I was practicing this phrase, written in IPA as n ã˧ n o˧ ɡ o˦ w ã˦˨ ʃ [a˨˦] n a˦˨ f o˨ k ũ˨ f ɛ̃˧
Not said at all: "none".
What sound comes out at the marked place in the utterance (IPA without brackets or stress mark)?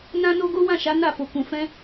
a˨˦